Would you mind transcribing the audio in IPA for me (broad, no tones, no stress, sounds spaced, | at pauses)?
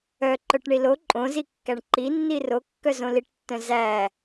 œ ǃ œ ʈ ɳ i l o ǃʼ õ z i kː æ ɳ ǃ i nː i r o kː œ z õ l i ʈ tː œ̃ z æ